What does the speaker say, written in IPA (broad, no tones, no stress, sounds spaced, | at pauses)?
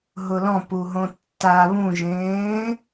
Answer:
ɦ ʊ l ɔ̃ p u ɦ õ tː a β ũ ʒ ẽː